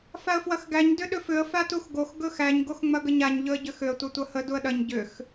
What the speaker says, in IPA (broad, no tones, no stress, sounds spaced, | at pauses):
f a ə̯ f w ɐ x ɡ æ ɲ d ʏ ɗ ʏ f ʏ ə̯ f a t u x ɡ o x ɡ ɵ x æ ɲ ɡ o x ŋ͡m ɐ ɡ ə ɲ a ɲ ʎ ɵ ə̯ ɟ ʏ x ʏ ə̯ tʷ ɐ tʷ ɐ h ə d u ə̯ ɗ ɐ ɲ ɟ ʏ x